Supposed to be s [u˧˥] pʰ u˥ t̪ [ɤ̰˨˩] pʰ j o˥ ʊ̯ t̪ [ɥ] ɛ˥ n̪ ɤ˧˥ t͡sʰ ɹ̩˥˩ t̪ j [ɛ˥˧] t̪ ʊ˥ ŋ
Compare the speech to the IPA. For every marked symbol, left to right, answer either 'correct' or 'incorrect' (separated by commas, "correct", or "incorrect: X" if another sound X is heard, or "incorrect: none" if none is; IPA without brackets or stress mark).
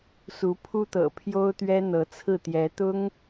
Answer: correct, correct, correct, incorrect: ɛ˧˥